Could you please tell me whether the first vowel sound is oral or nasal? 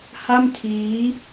oral